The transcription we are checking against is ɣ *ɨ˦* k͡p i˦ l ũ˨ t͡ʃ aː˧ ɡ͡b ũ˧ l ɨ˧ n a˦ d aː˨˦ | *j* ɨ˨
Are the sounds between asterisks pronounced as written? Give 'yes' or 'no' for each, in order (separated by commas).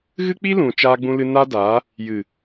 yes, yes